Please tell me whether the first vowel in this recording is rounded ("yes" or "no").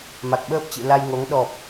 no